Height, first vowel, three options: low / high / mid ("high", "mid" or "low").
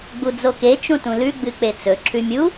high